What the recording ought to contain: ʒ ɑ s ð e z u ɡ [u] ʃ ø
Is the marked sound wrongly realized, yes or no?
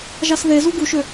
no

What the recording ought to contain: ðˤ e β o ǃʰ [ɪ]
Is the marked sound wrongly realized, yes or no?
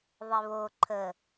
yes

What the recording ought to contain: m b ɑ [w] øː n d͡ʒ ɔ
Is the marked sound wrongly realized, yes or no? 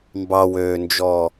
no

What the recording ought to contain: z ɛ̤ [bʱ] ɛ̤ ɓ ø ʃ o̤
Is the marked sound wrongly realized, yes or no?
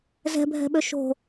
no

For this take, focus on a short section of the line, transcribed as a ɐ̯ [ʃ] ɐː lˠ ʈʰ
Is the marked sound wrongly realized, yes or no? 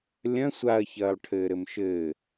yes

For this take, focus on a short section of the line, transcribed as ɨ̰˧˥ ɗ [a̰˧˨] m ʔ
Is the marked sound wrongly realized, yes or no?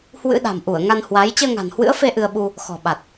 yes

